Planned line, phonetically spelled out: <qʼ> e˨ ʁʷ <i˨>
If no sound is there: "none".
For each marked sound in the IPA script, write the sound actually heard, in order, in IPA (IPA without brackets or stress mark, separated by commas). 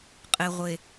qʼ, e˨